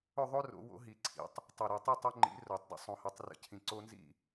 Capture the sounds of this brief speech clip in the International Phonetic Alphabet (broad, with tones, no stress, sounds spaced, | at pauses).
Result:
ɵ˥˨ ðˤ o˦ r o̰˨˩˦ w o̰˨˩˦ ɦ i˨˩˦ ǀʰ ḭ˨˩˦ tˤ | tˤ ɵ˧˩ ɾ ɒ˧˩ tˤ ɵ˥˨ tˤ a˦ ŋ͡ǃ ḭ˨˥ r o˨˩˦ tˤ d ə̰˥˨ sˤ õ˧˩ h ɐ˨˥ tˤ r ə̰˧˩ cʰ ĩ˧˩ ǀ o˦ n z ḭ˥˨